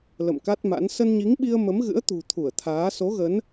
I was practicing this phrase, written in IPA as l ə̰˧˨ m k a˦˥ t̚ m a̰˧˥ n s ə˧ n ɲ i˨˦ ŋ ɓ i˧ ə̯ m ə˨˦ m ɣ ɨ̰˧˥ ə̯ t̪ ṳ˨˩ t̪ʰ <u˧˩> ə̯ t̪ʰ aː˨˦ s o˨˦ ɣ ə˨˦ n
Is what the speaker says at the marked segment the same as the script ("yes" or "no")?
yes